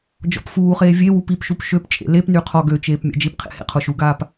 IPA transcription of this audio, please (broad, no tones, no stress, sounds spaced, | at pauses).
d͡ʒ ɔ̰ p f uː χ eː vʲ e w u p i p ʃ u p ʃ ø p t͡ʃʼ ḛ l e p n y qʰ ɔ ɡ ø t͡ʃ eː p mʲ a̰ d͡ʒ i p qʰ ḛ h ḛ qʰ o ʃ u ɡ aː p